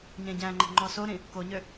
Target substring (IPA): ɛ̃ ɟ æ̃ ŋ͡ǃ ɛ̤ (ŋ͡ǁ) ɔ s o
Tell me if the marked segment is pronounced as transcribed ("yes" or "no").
no